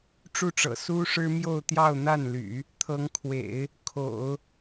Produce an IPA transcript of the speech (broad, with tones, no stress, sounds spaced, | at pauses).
ʈ͡ʂ u˥˩ ʈ͡ʂ ɤ̰˨˩ s u˥ ʂ ɻ̩˥ m j o˥˧ ʊ̯ t̪ j ɑ˥˧ ʊ̯ n̪ a˥˩ n l y̰˨˩˦ | t̪ʰ ɤ˧˥ ŋ kʰ w ḛ˨˩˦ ɪ̯ | kʰ o̰˨˩˦ ʊ̯